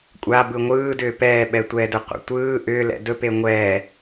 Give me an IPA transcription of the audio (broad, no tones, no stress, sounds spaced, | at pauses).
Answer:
kʷʼ a b ɯ ŋʷ ɯː d ʏː p ɛː ɓ ɛ tʷ ɛː d ɵ qʷ a̰ tʷ ɯː ʔ ʏː l ɛ̰ d ɵ p e ŋʷ ɛː